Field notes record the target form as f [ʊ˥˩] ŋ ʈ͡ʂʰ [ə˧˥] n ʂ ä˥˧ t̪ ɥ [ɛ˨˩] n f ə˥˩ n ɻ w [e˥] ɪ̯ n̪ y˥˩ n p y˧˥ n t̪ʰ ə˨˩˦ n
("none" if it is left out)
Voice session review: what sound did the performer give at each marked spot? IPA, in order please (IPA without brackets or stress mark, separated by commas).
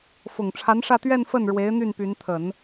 ʊ˨˩, a˧˥, ɛ˥˧, e˧˥